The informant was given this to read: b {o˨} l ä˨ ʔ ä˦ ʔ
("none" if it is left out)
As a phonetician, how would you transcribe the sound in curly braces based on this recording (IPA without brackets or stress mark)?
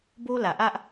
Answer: o˦